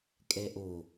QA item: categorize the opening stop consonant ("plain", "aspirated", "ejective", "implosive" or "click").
ejective